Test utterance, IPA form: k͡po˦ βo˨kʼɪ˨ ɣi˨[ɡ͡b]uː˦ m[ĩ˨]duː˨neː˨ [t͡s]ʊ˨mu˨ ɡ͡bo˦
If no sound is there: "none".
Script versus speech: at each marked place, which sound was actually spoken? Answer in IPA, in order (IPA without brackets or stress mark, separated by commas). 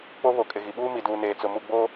ɓ, i˨, t͡s